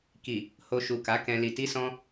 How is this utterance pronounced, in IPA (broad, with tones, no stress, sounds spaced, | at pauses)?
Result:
k i˨ | h o˧ ʃ u˨ k a˨˦ k ɛ̃˧ l i˨ t i˧ s ɔ̃˧